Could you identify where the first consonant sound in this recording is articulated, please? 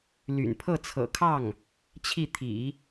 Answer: alveolar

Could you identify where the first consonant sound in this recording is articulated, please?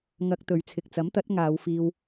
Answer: velar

